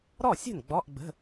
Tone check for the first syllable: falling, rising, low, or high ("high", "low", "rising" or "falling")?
falling